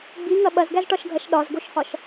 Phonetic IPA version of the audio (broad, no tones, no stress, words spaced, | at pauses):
ɡ͡biŋɐ ɓɐzɡæzʈɒʃɡʱɐʃ ɗɒzɡoʃhɒʃ